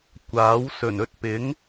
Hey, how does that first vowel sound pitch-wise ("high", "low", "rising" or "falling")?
rising